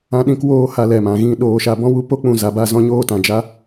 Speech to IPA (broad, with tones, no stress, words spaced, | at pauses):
ã˧ɗĩ˧k woː˧ ha˧lɛ˨mã˨ɣĩ˦˨ ɗoː˧ʃa˧bɔ̃˦wu˦ po˧k͡pũ˨ za˨ba˦˨zɔ̃˧ɲoː˧ tã˨d͡ʒa˦